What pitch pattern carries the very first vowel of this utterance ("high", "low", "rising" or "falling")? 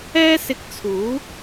high